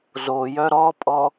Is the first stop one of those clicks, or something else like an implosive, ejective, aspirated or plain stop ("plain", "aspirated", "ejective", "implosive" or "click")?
ejective